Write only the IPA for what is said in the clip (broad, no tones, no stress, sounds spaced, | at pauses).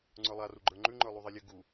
ŋ͡ǀ ə˞ lˠ a r u ɡ͡ǃ ə˞ ŋ͡ǃ ʉ ŋ͡ǃ ə˞ lˠ u ðˤ e lʲ ə ɡ u